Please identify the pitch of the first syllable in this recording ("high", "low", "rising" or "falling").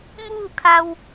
falling